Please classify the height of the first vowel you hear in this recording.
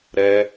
mid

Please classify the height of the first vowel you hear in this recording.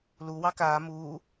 high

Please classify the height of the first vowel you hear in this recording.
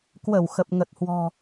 mid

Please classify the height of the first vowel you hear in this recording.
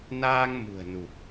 low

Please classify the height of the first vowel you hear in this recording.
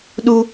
high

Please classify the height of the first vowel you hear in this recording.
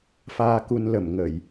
low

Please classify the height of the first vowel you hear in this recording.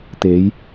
mid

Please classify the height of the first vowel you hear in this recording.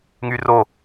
high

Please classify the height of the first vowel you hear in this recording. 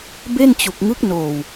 mid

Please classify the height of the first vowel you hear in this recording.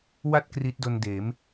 low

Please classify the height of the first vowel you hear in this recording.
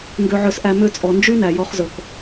mid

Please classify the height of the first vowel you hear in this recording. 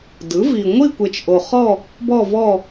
high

